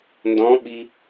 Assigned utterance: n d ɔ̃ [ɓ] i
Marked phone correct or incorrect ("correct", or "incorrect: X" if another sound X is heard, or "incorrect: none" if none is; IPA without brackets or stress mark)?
correct